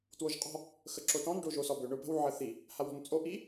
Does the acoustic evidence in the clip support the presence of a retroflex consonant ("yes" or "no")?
yes